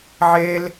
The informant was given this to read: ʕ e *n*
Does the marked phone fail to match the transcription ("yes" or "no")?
yes